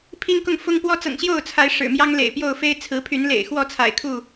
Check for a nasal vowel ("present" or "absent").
absent